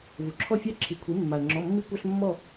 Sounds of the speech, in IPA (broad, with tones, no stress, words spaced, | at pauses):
vu˩ǁʰɔ˥˨fʲɑ˥˨ ǁʰi˩˥kʷʰi˩˥ mːa˩ə̯ŋ͡ǁɔ˩˧˩ mːi˦kʷa˦ɬ mːɔ˥˨